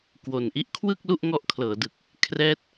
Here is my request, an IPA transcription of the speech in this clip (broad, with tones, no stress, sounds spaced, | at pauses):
k w o˨˩ n ʔ i˥˩ ʔ kʰ w ɯ˥˩ k̚ l u˥˩ ʔ ŋ ɔ˦˥ ʔ kʰ l ɤː˩˦ d ɯ˨˩ k̚ | kʰ r ɛː˥˩ t̚